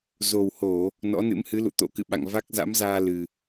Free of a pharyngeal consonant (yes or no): yes